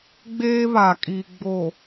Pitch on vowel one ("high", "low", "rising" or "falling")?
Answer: high